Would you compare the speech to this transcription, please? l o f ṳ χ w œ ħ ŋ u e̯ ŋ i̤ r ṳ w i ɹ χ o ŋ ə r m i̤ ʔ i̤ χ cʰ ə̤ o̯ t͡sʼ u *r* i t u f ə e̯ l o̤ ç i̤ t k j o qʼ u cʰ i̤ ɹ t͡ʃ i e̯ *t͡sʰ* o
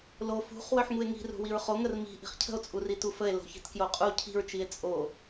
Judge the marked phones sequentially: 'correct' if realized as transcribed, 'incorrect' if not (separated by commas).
correct, incorrect